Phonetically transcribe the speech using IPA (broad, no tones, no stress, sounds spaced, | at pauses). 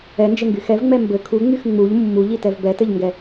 ɛ n d͡ʒ ɘ ŋ ɡ y x ɛ v ŋ͡m ɛ m b ɘ kʰ u ŋ͡m y x ŋ͡m u ʎ mː u ʎ i t ɛ v b ɛ t ɘ ʎ ŋ ɡ ɛ